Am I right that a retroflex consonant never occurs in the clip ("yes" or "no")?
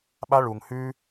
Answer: no